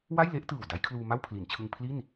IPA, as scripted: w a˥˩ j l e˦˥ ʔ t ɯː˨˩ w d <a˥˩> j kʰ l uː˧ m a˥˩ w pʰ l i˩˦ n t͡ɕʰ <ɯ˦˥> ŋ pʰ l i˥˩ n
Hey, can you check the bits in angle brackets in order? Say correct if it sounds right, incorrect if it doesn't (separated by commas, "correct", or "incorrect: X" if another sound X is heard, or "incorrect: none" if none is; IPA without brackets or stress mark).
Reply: incorrect: a˦˥, incorrect: ɯ˧